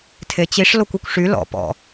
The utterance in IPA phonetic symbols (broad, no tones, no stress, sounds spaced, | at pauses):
tʰ e t͡ɕ i ʂ l o kʷ u kʷ ʂ y l ɔ̰ p ɔ̰